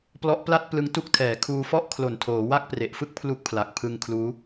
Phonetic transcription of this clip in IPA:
p l ɔ˦˥ ʔ p l a˥˩ t̚ p l ɯ˦˥ ŋ t u˦˥ k̚ tʰ ɛː˩˦ kʰ uː˧ f ɔ˥˩ ʔ kʰ l o˨˩ n tʰ oː˩˦ w a˥˩ k̚ p r e˨˩ ʔ f ɯ˥˩ k̚ pʰ l u˦˥ k̚ pʰ l a˨˩ k̚ pʰ ɯ˧ ŋ kʰ l uː˦˥

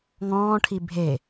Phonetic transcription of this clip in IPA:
ŋ ɔ̃ː ʈʰ i bʱ e

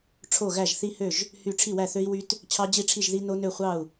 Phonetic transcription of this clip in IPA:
ʈ͡ʂʰ o˥˨ ɣ æ˥˨ ʒ θ i˦˥ h ø˥˨ ʒ | h y˥˨ ʈ͡ʂʰ i˥˨ w æ˥˨ θ ø˦˥ i̯ w y˦˥ t | t͡ɕʰ ɑ˦˥ d͡ʑ i˥˨ ʈ͡ʂʰ i˥˨ ʒ ð i˦˥ n o˦˥ n ø˥˨ χʷ ɑ˥˨ u̯

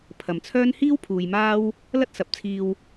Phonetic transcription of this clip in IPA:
pʰ ɐ˨ m t͡sʰ œː˥ n h iː˥ w pʰ uː˨ j m aː˥ w | l ɐ˥ t̚ s ɐ˨˥ p̚ t͡sʰ iː˧ w

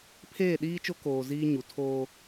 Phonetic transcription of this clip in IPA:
pʰ eː˦˨ ɗ iː˦ t͡ʃ o˦ k oː˨ z iː˦ ɲ u˨ tʰ oː˦

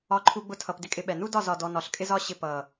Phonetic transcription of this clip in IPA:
ɒ˦ ǃʰ u˦ ɡ͡b ʊ˦ tʰ ʌ˧ p d ɪ˦ kʼ ɪ˧ ɓ ɛ˨ n u˦ d ɒ˦˨ z ɒ˨ d ɔ˨ n ɒ˨ ɬ kʼ ɪ˦ z ɒ˦ ɕ ɪ˧ p ʌ˨

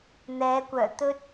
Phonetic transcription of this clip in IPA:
n̪ ɛː˨˧ kʷ œː˨˩ t̪ ɵ˥ t̚

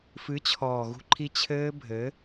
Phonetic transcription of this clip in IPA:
f ɨ˨˦ t͡ɕʰ ɔː˨ ɣ ṳ˦ ǃʰ i˦ t͡ɕʰ ɘː˦ bʱ ɘː˨˦

